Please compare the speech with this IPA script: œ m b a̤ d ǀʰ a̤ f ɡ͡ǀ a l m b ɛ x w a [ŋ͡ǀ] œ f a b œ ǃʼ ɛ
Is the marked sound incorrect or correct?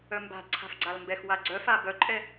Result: incorrect: ɡ͡ǀ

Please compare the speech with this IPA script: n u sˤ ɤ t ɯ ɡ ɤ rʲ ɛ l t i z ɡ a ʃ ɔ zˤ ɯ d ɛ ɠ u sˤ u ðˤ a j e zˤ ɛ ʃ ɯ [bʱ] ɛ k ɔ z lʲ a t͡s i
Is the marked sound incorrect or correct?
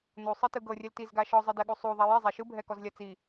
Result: correct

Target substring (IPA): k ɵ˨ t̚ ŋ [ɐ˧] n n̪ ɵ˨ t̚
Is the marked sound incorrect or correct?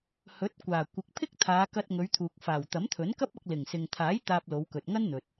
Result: incorrect: ɐ˥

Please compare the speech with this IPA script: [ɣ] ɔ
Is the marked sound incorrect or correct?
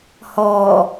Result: incorrect: h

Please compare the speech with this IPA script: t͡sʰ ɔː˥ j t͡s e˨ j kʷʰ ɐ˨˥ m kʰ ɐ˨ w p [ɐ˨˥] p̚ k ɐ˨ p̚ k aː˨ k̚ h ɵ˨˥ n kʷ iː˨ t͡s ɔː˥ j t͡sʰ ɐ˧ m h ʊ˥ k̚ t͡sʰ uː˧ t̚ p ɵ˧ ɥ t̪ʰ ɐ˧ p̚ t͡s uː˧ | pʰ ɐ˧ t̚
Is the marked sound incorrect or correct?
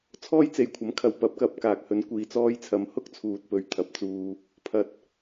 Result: correct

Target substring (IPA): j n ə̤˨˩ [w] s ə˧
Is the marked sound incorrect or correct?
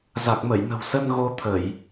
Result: correct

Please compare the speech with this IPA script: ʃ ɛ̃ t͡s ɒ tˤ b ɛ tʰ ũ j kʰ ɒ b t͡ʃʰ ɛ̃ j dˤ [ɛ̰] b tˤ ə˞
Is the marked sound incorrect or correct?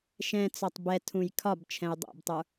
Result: correct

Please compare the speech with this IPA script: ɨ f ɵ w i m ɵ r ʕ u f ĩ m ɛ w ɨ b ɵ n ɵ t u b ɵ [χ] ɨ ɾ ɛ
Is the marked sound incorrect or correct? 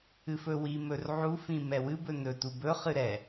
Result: correct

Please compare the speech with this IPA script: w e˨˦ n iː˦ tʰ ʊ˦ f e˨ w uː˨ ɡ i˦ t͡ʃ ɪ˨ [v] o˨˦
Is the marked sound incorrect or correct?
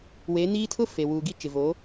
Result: correct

